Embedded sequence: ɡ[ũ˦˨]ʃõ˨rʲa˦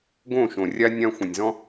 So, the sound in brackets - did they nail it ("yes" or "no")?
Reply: no